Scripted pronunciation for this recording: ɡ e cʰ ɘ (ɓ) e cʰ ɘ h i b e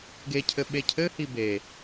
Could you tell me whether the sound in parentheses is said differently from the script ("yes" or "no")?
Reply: no